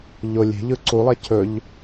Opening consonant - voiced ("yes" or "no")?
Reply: yes